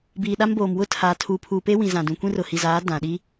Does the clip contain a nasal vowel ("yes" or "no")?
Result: yes